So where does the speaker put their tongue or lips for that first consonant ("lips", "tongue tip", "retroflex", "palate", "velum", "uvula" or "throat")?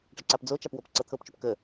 retroflex